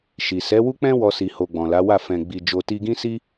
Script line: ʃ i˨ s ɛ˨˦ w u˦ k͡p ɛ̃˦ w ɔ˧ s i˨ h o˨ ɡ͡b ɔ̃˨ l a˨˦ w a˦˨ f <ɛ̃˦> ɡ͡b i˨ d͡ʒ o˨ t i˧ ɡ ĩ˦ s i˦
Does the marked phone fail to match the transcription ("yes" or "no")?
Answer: yes